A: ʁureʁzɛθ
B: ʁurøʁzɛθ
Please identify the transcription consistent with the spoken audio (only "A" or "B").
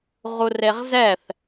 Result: A